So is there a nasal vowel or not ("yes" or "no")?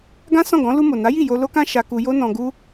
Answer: yes